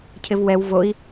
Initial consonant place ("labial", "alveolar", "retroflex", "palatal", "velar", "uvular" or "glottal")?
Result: palatal